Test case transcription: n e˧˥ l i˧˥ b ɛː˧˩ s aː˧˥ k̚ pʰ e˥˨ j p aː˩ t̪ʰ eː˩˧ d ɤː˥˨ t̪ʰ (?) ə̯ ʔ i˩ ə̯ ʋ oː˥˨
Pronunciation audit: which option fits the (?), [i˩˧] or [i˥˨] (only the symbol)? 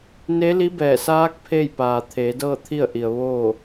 i˥˨